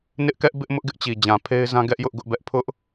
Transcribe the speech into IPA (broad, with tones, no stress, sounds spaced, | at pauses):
n ɪ˦ ʔ k ɛ˦ ʔ b ɪ˦ ʔ m ʊ˦ ʔ ɡ ɪ˦ ʔ t͡ɕ i˨ d͡ʑ ã˨ pʰ e˦ ɪ̯ z ã˦ ɡ ɛ˦ ʔ j ʊ˦ ʔ ɡ ʊ˦ ʔ b ɛ˦ ʔ pʰ ʊ˦ ʔ